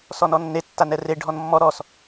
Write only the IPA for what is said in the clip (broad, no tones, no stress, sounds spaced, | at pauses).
s ɔ n ɔ nː e tː a n ɛ r e ɖʱ ɔ n mː ɔ ɾ ɔ s